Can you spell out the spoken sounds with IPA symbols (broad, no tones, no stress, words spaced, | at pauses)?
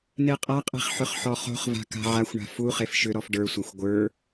neqʼaqʼe̤χ ħʏχħɔχo̤χva̤ ka̤ʕaxʷɳa̤ fu χefʃʏɾɔf ɖə˞sʷaxʷ ɡʷə˞